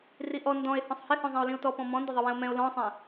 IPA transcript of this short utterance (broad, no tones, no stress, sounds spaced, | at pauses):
r i ʔ ɔ n d ɔ̃ e̯ h ɔ̃ sˤ h ɪ h ɔ̃ zˤ ɛ̃ o̯ l ĩ o̯ t ɔ p ɔ̃ m ɔ̃ n d ɪ ðˤ ɪ w ɛ̃ o̯ m ɛ̃ o̯ l ɔ̃ sˤ ɛ̃